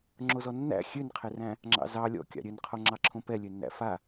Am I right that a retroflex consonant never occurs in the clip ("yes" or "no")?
yes